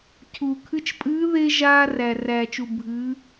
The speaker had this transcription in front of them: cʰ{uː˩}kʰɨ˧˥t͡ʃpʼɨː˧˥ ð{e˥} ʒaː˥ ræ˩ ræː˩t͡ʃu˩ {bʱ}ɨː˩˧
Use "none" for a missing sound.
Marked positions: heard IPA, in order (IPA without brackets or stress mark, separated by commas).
uː˩, e˥, bʱ